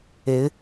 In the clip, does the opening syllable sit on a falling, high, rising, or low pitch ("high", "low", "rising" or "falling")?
rising